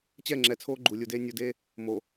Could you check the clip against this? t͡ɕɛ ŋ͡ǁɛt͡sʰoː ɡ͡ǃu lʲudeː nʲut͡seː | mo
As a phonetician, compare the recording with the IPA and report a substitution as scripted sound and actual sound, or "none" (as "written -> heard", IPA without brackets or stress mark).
t͡s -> d